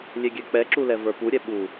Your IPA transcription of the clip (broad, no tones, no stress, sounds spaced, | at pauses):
lʲ e ɡʲ ɛ k͡p ɛ ǁ u l ɛ v ə˞ p u ɾʲ ɛ ɓ u